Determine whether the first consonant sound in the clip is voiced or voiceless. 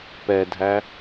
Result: voiceless